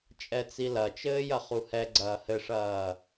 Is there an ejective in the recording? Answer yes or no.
yes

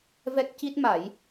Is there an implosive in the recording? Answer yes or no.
no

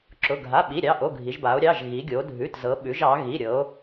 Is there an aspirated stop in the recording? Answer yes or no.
no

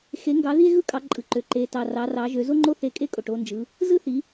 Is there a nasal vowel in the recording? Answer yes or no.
no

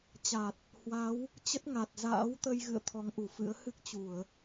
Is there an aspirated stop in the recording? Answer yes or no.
yes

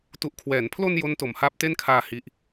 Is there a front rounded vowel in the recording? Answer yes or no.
no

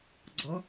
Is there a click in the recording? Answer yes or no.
yes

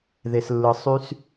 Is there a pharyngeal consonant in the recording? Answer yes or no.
no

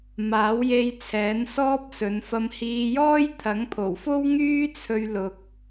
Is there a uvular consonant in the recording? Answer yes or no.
no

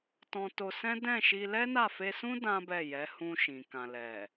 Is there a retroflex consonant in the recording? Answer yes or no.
no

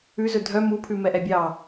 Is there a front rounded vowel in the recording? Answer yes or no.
yes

